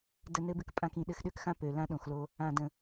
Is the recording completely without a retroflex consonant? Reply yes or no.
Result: yes